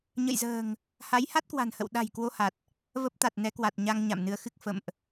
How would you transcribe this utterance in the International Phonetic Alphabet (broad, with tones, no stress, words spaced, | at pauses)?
ɲə̰˧˨jzə̤ː˨˩ŋ | ha˨˦jha˦˥t̚kwa̤˨˩nhə̰˧˨w ɗa̤˨˩j kwo˧ha˨˩t̚ | və˦˥p̚t̪a˨˩t̚nɛ˨˦kwa˨˩t̚ ɲa˧ŋ ɲa̰˧˨mnɨ˨˦ə̯xɨ˦˥k̚ fə̰˧˨mʔ